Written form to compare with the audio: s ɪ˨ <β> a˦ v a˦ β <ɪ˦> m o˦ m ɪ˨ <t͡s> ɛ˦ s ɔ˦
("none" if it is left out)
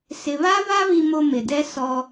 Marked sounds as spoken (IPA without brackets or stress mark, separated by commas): β, i˦, d